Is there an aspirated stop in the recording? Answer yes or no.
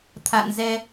yes